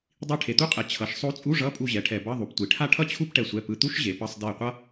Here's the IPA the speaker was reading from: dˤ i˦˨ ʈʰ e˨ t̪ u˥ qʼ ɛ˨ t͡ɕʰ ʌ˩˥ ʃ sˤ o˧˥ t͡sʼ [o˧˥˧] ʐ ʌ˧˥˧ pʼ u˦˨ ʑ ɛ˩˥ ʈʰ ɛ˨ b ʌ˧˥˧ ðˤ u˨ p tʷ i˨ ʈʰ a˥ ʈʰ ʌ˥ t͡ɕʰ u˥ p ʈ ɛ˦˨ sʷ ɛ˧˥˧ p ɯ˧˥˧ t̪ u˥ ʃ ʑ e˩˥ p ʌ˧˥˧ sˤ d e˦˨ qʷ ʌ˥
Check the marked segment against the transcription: incorrect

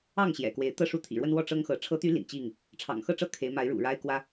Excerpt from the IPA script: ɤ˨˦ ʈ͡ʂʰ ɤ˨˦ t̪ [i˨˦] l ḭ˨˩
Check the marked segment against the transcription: incorrect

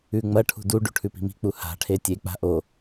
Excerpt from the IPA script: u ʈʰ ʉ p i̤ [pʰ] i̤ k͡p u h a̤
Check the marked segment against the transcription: incorrect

